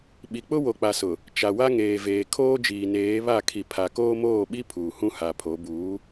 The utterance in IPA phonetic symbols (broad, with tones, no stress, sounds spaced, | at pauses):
ɓ i˨ k͡p ʊ˦ w o˨ k͡p a˨ s ʊ˨ | t͡ʃ a˨ w a˦ ŋ eː˨ v eː˨ kʰ oː˦ d͡ʒ iː˨ n eː˨˦ β a˦˨ kʰ i˨ pʰ a˨ k oː˦ m oː˦˨ ɓ i˦ pʰ uː˨ h ũ˦ h a˨ pʰ o˨˦ b uː˨˦